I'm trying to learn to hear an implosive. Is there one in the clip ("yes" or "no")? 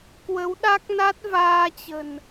yes